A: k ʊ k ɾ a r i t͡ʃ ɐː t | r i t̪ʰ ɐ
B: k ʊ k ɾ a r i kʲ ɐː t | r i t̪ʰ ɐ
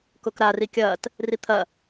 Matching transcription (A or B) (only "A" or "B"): B